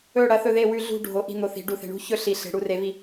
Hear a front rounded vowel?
no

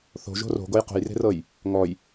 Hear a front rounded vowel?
no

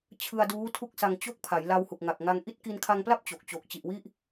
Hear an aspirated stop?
yes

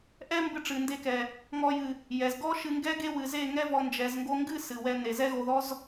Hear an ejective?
no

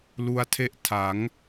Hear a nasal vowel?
no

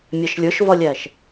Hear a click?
no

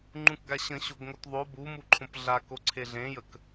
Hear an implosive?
no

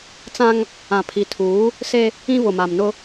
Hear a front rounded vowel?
no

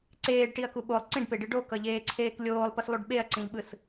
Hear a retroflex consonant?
yes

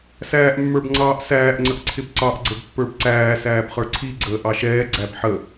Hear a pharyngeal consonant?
yes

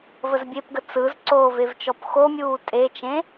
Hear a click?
yes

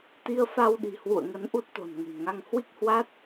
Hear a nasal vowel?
no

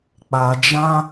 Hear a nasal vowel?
yes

